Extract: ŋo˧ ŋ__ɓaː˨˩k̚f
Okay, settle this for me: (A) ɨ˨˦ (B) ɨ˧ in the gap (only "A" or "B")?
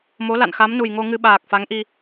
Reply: B